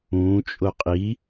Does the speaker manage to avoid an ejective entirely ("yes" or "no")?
no